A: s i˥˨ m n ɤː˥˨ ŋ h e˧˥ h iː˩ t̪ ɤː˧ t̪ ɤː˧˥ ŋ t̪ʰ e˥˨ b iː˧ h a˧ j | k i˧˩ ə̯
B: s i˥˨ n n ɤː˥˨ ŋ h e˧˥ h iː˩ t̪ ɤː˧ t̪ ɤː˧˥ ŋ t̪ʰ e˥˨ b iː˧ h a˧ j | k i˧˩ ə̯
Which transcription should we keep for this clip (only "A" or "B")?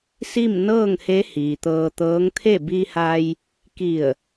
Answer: A